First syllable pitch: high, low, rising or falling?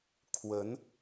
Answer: rising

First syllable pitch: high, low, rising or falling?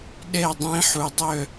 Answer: falling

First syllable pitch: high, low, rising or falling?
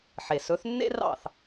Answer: low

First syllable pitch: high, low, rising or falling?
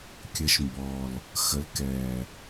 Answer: rising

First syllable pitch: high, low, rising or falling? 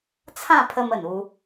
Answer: falling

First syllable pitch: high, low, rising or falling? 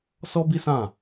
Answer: high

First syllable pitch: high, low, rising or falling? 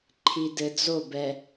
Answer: low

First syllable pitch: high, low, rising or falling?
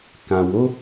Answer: low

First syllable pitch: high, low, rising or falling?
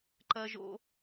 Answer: high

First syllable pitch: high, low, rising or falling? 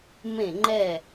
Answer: falling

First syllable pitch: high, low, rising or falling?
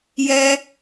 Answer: high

